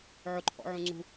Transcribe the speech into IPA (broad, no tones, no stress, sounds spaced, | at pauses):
ʕ ʊ ǃʰ ɔ̰ ʕ ũ ŋ͡ǀ ṳ